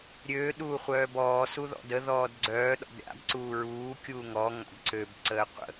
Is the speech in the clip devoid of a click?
no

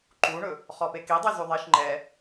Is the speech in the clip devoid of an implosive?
yes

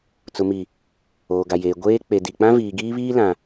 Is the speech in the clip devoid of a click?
yes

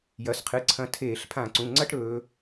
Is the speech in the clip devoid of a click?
no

